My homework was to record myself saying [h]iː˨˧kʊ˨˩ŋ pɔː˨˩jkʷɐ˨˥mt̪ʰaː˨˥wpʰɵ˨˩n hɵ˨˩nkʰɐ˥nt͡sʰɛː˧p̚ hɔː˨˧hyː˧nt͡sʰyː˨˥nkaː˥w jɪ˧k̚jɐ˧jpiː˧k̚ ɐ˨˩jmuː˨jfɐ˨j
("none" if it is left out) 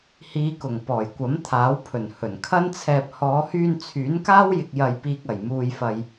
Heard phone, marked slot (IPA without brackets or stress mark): h